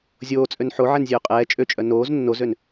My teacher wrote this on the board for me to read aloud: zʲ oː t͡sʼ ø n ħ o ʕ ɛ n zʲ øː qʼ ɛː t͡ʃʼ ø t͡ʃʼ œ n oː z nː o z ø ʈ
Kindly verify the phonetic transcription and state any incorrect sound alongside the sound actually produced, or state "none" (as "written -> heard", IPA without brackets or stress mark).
ʈ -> n